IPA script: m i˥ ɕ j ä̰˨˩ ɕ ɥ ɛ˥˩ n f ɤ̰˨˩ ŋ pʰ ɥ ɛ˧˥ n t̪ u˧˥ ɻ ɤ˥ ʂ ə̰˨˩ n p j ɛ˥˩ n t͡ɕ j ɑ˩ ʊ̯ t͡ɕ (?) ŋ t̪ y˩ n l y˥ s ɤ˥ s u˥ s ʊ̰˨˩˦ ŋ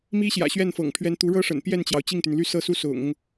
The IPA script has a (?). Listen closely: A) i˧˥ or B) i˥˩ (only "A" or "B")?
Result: B